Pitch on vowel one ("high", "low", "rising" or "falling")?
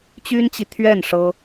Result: high